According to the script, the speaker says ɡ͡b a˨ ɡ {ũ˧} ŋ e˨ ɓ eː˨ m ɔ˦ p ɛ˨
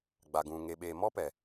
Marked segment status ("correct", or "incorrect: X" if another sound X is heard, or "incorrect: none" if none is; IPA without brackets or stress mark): incorrect: ũ˨